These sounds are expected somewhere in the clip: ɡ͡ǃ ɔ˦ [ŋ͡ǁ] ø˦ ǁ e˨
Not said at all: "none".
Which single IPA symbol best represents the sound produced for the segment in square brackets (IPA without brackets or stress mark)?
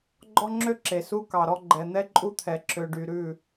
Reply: ŋ͡ǁ